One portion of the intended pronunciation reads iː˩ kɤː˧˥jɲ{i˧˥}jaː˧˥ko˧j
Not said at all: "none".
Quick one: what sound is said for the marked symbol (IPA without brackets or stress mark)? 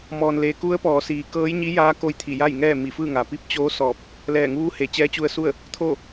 i˧˥